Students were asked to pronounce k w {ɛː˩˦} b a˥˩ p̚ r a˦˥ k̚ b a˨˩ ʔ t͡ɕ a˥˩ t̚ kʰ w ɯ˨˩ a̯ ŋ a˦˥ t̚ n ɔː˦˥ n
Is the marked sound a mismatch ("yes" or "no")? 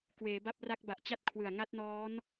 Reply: yes